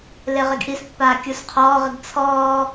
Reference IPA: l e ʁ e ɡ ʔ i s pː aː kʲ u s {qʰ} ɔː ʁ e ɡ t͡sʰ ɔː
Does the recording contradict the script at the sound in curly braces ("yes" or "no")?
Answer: no